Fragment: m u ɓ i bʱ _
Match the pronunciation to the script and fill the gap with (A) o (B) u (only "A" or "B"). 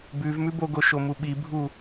B